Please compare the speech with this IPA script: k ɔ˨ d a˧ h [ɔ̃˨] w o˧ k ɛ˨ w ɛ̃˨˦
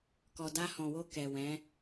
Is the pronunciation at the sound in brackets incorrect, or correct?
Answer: correct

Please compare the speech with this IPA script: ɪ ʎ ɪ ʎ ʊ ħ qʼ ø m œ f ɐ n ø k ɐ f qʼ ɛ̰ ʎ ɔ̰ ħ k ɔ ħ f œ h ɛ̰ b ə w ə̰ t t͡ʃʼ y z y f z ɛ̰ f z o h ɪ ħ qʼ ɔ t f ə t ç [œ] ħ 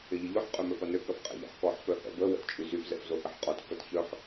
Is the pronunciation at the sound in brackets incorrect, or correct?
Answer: correct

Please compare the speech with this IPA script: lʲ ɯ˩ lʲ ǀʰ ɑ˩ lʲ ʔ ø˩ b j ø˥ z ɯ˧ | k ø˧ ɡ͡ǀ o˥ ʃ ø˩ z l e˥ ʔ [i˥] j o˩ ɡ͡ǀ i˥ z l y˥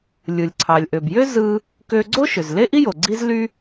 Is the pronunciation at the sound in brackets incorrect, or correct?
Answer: correct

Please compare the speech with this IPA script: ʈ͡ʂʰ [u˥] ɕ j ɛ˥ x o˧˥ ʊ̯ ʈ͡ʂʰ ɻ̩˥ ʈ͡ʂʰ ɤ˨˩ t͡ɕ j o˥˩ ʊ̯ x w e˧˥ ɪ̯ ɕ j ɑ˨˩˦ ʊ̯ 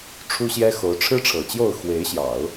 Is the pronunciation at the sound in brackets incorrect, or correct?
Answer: correct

